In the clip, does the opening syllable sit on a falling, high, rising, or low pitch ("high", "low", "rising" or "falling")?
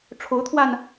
rising